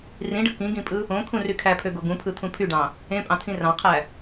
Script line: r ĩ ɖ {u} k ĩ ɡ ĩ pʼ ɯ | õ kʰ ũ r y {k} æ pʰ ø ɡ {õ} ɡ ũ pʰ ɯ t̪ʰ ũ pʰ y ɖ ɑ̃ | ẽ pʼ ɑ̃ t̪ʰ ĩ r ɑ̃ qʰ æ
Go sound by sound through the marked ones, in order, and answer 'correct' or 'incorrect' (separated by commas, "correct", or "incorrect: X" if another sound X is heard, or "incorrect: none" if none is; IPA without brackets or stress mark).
incorrect: ɯ, incorrect: kʰ, incorrect: o